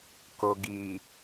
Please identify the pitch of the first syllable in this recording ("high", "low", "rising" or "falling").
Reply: low